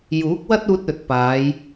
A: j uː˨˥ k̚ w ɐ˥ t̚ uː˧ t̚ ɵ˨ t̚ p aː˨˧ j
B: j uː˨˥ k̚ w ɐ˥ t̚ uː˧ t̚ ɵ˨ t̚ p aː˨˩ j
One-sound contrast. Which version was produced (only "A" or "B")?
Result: A